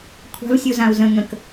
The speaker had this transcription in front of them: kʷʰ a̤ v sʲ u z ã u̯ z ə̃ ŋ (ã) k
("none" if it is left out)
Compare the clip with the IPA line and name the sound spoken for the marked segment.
ə̃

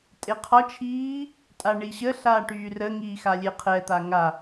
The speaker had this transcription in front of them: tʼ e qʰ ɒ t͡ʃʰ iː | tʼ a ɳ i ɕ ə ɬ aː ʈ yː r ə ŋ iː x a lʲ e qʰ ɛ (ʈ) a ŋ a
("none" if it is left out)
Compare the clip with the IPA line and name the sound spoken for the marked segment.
t̪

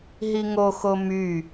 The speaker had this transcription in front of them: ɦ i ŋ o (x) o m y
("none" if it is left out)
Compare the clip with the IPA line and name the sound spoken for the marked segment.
x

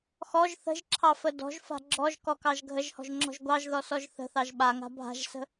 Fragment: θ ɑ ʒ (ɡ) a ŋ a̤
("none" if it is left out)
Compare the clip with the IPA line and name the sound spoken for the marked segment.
ɓ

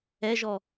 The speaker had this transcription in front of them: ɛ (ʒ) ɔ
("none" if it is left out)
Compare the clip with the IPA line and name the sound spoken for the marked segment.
ʒ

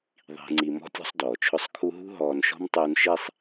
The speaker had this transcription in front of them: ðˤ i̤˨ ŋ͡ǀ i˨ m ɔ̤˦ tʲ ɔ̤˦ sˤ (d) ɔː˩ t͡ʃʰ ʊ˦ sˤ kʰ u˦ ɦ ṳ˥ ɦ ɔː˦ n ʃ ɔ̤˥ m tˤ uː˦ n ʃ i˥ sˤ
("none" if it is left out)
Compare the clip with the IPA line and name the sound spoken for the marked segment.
d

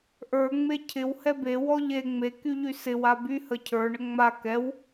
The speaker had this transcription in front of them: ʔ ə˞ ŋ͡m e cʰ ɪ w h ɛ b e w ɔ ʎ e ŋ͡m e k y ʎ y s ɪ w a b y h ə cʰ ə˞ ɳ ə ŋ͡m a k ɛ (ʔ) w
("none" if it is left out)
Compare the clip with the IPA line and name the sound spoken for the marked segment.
none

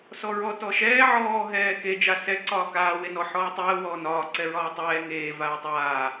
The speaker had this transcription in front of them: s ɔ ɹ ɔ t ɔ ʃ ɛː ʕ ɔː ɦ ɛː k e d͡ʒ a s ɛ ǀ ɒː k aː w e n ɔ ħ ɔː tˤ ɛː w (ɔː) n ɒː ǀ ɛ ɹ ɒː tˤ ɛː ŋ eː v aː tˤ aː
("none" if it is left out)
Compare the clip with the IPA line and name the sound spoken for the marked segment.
ɔː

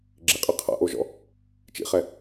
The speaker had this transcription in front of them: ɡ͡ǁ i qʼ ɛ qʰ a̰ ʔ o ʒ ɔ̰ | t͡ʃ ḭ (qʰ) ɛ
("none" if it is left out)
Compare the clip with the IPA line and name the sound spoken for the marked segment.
χ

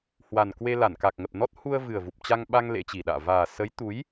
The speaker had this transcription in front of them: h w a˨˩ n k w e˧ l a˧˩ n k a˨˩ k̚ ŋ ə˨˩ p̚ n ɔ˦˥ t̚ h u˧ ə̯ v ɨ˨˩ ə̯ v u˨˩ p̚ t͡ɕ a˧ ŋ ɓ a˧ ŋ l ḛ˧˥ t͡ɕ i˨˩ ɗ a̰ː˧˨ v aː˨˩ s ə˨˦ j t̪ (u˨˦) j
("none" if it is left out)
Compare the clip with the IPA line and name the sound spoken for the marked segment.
u˨˦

